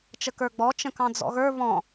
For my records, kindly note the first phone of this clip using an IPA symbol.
t͡ʃ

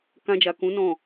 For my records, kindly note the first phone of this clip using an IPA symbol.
k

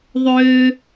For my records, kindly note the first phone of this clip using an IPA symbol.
ðˤ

